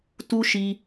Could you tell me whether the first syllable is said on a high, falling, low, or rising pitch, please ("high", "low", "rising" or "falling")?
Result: high